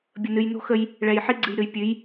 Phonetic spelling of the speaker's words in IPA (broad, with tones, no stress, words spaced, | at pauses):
bʲə˨nɨ˨jno̤˦xə˦j | ɭɛ˨jħi˦ɡ͡ǀɨ˨jɾɨ˨j pʲɨ˨˦j